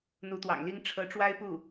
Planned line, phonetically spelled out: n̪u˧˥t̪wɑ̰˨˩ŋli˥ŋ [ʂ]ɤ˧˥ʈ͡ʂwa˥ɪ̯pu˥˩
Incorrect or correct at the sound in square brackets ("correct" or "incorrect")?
incorrect